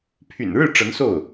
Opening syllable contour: low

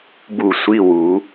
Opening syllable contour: falling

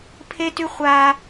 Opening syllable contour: high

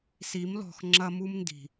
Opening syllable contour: rising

